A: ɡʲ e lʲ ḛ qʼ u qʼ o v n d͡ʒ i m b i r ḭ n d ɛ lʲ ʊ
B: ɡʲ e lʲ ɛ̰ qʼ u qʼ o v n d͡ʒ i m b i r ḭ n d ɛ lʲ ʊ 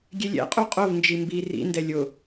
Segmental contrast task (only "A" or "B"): B